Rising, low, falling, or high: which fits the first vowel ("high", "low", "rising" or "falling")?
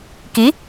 rising